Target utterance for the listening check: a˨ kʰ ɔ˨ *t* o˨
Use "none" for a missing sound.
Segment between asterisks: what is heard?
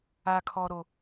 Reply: ɾ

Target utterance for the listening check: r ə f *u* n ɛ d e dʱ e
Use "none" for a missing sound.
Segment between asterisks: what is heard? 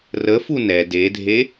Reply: u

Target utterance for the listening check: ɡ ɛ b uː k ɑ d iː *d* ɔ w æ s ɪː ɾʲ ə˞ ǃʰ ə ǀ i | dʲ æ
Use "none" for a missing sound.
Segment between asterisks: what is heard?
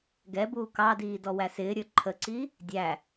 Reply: d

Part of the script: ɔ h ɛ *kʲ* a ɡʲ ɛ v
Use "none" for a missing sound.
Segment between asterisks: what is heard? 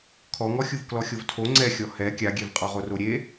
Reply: kʲ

